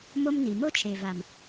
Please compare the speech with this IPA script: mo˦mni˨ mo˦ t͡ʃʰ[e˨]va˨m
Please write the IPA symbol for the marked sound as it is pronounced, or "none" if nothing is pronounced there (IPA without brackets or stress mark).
e˨